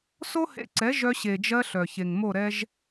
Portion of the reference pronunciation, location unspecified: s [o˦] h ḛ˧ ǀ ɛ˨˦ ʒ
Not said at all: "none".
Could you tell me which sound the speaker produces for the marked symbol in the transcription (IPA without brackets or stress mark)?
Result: o˦